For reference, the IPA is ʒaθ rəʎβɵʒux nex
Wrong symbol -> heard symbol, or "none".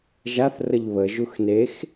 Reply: ɵ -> ə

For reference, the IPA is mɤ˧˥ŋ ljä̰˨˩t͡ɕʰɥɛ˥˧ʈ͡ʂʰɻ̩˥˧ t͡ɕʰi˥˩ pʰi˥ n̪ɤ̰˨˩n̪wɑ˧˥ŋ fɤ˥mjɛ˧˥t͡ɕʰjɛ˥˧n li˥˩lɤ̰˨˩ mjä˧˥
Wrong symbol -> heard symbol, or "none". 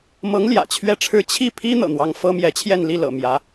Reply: none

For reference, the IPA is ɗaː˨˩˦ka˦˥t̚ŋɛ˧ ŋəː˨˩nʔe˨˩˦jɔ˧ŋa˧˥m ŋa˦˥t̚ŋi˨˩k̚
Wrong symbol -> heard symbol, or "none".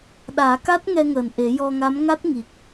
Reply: none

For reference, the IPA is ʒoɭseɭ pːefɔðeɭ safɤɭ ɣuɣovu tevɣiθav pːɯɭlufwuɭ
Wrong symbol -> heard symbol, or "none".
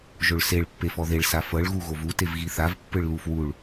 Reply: none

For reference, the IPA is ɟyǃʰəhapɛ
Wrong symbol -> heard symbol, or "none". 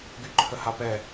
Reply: ɟ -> ɡ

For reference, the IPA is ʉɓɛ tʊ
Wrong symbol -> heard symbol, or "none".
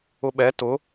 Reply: ʉ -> ʊ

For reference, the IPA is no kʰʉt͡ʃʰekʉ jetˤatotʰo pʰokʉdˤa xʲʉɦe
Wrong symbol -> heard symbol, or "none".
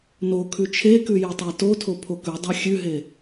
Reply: none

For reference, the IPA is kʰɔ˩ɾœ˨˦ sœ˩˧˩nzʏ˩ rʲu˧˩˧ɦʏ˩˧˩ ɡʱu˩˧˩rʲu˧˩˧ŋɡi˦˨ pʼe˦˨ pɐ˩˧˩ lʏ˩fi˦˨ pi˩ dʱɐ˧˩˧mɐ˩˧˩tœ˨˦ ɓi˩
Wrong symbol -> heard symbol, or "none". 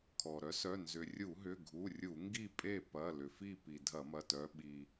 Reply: none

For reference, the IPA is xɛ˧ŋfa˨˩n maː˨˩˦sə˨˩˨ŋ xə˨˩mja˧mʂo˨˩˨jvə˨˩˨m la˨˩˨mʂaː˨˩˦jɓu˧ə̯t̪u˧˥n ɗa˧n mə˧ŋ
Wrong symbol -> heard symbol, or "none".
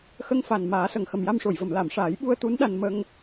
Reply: ɛ˧ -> ə˧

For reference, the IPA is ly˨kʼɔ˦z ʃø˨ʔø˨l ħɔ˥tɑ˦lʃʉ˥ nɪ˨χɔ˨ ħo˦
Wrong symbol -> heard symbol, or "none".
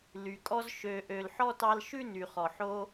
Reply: ɪ˨ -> y˨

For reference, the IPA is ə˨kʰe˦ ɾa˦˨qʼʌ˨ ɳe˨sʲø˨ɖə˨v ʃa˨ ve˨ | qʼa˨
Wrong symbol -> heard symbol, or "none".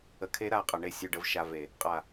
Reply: none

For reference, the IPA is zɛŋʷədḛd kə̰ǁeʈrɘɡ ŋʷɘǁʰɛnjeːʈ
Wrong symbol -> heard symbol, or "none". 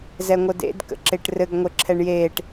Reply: n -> ɳ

